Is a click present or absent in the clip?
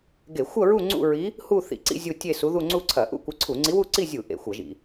present